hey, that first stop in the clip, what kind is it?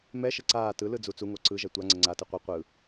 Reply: click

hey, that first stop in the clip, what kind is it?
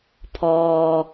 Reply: aspirated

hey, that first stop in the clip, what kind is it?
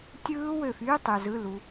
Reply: plain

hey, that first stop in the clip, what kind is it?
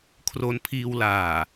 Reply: aspirated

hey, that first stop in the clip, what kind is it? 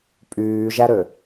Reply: ejective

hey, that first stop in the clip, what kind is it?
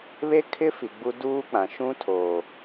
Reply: aspirated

